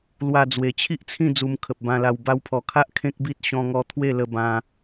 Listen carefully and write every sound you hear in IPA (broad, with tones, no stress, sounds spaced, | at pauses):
l w a˧ d͡z w e˨˩ t͡ɕʰ i˦ ʔ t͡sʰ ĩ˥˧ d͡z u˧ m kʰ ə˨ p̚ b ã˧ l a˧ w b a˧ w pʰ ɔ˨˩ kʰ a˦ ʔ kʰ ẽ˦ k̚ b i˦ t̚ ɕ ɔ̃˦ ŋ ɔ˦ t̪ʰ w e˥˧ l ə˧ b ã˧